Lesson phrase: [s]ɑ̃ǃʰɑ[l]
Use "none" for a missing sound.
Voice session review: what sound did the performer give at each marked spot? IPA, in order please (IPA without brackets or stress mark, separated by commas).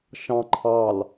ʃ, l